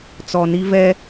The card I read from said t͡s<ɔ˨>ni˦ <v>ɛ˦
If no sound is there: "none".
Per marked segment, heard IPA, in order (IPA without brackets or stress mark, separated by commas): ɔ˨, v